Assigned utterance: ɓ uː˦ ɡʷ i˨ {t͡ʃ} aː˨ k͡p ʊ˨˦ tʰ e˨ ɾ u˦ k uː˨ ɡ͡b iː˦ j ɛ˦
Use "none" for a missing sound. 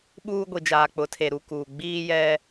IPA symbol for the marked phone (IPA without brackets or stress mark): d͡ʒ